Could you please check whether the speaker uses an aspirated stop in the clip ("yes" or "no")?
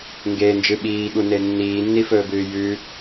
no